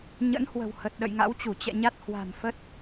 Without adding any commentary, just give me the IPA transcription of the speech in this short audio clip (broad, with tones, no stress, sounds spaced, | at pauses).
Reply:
ɲ ə̰˧˥ n h w ə̤˨˩ w h ə˨˩ t̚ ɗ ə̰˧˨ j ŋ a̰˧˥ w t͡ɕ u˧˩ t͡ɕ ɛ̰˧˨ ɲ a˦˥ t̚ h w a̤˨˩ m f ə˦˥ t̚